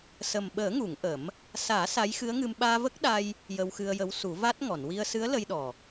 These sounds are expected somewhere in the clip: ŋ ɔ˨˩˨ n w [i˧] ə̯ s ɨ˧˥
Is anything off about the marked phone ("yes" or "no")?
no